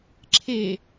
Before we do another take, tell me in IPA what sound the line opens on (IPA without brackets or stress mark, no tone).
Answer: ǁʰ